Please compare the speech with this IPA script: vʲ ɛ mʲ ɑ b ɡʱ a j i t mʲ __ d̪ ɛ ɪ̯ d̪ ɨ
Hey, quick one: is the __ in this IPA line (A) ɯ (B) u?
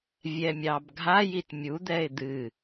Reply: B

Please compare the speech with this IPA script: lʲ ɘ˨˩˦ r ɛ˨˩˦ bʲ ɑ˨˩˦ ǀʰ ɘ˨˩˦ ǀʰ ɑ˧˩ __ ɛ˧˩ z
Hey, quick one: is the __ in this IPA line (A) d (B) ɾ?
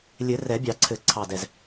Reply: A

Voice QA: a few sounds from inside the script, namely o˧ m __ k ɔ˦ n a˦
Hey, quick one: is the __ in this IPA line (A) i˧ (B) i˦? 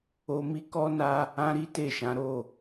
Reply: B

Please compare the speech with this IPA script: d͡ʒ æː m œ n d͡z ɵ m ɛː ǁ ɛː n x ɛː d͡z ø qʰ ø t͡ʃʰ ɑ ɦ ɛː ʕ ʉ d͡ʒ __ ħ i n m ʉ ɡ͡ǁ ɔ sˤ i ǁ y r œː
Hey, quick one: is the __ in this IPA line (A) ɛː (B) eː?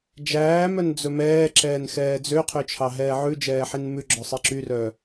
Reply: A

